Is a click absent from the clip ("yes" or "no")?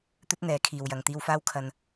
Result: yes